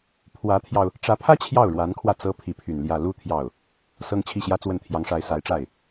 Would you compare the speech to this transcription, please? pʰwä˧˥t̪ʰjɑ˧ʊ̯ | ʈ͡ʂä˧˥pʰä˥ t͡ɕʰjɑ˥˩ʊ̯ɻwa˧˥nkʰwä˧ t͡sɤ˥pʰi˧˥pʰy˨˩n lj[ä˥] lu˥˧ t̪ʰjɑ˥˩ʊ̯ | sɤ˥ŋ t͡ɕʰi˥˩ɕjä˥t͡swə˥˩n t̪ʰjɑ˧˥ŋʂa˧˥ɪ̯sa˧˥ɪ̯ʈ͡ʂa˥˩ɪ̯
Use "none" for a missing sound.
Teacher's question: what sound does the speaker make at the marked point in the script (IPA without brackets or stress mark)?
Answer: ä˥˧